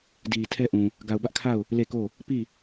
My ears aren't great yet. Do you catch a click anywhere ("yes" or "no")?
no